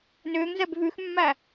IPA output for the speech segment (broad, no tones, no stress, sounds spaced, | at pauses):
n ʏː ŋ z ɛ b v ʉ x mː æ